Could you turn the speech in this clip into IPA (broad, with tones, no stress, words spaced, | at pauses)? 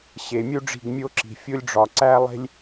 ɕe˨ mʲu˦ɖ͡ʐi̤˦˨ɡmʲo˦ǁi̤˨ fʲo˦lʲɖ͡ʐɒ˨ǀæ˦ lˠe̤˦lʲ